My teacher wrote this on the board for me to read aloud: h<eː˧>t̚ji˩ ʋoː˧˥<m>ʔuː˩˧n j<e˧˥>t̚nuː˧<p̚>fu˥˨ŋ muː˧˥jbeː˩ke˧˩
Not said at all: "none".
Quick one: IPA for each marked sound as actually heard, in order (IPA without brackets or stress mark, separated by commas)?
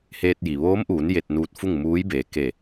eː˧, m, e˧, t̚